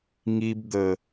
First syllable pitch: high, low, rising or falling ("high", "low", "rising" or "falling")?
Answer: low